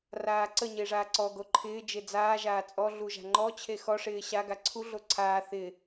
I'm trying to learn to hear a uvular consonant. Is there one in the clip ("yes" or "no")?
no